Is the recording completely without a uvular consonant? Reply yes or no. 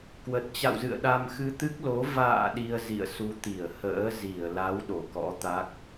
yes